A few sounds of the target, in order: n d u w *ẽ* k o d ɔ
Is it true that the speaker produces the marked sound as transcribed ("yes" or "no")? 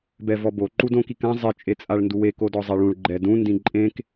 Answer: no